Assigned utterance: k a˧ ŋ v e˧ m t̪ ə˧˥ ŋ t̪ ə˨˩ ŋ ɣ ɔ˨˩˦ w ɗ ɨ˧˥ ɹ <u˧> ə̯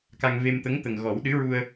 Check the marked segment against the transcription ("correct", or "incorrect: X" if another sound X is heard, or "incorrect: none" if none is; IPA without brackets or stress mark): correct